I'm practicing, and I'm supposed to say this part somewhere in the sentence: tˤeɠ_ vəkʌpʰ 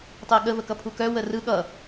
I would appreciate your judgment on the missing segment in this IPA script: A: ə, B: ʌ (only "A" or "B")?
A